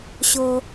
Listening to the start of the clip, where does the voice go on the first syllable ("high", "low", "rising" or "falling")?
low